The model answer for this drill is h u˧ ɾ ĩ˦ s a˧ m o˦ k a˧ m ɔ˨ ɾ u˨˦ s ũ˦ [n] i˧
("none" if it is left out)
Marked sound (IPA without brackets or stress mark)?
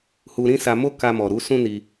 n